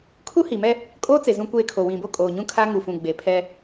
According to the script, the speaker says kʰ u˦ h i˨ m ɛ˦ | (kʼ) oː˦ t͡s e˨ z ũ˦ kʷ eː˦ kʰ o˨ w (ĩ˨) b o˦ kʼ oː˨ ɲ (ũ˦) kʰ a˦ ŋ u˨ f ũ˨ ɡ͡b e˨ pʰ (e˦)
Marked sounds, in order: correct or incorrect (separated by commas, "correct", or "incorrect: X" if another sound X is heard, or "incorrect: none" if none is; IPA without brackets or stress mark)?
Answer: correct, correct, correct, incorrect: ɛ˦